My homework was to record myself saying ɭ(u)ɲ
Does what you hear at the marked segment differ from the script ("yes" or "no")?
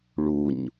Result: no